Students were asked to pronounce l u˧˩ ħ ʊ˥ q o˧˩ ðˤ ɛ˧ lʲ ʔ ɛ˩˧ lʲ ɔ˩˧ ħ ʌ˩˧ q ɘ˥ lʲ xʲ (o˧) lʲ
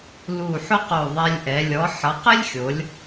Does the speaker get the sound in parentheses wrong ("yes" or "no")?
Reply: yes